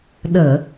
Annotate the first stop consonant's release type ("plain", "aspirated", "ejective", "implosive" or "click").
implosive